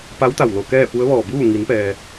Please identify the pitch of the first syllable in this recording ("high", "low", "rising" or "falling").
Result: rising